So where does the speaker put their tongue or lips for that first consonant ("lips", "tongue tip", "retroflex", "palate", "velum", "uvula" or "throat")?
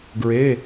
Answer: velum